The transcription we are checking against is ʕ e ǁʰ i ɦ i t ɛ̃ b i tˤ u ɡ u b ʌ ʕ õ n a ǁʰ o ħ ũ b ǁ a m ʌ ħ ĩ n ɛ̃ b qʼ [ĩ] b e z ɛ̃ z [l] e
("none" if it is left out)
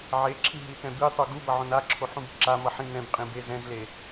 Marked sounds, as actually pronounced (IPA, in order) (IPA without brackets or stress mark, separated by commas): ĩ, l